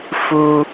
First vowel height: high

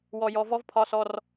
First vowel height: mid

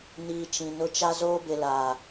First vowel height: high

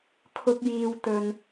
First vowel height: high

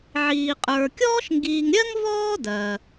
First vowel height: high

